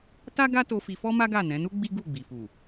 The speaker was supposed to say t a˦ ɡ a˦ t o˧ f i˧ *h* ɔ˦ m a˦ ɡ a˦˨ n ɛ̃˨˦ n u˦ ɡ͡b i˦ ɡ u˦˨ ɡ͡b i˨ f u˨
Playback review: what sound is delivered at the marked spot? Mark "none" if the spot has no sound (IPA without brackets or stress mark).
f